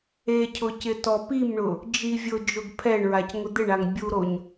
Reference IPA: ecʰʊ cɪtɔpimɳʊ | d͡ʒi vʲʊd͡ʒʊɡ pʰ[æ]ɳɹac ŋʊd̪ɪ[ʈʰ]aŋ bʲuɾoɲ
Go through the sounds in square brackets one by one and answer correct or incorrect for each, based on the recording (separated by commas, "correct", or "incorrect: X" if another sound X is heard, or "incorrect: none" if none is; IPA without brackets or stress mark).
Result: incorrect: ɛ, incorrect: ɳ